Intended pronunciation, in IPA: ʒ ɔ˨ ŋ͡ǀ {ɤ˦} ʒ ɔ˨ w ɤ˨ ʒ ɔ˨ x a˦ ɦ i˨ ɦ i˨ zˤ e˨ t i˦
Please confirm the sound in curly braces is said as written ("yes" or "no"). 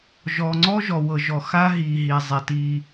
no